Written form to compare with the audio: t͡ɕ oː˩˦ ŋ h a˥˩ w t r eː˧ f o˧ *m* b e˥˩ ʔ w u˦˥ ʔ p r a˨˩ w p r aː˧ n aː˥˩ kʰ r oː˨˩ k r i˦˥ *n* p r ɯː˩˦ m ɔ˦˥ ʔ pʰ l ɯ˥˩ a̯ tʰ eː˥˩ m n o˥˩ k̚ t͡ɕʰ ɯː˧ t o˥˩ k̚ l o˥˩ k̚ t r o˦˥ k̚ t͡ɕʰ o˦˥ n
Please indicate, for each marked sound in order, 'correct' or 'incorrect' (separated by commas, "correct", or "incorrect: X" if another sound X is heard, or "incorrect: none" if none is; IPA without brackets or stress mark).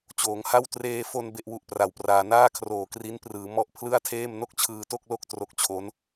incorrect: n, correct